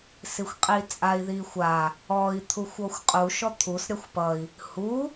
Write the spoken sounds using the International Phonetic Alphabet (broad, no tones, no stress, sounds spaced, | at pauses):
s i xʷ qʼ i t͡sʼ a i̯ ð i xʷ a | ɔ i̯ t̪ʰ u xʷ ɔ xʷ qʼ u ʃ ɔ t̪ʰ u s ɾʲ ʌ xʷ p ʌ i̯ | h u